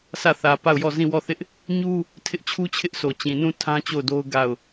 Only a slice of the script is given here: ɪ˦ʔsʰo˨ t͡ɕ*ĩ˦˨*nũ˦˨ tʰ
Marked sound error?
yes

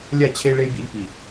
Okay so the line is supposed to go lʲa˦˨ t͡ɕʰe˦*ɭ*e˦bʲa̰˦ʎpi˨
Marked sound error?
no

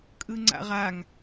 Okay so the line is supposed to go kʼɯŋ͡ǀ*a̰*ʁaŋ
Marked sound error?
no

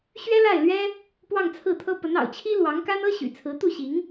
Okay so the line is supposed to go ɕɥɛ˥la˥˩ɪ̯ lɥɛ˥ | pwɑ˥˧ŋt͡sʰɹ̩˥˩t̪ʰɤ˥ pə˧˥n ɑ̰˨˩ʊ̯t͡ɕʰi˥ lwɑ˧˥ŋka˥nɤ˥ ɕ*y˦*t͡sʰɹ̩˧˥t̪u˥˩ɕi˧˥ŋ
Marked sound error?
yes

